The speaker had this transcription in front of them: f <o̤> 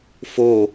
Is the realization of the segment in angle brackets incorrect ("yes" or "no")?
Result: yes